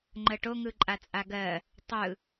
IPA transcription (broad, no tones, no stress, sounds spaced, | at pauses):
ŋ͡ǃ ə ʈ o ŋ ɯ ǃʼ a t͡sʼ a ɡ ɜ | tˤ ɯ